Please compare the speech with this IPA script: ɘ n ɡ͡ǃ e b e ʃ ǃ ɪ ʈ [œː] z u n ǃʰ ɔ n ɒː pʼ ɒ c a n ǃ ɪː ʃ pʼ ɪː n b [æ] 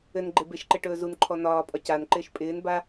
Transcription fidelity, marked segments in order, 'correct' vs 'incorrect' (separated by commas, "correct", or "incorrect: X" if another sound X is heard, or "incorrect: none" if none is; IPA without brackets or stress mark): incorrect: ɵː, incorrect: a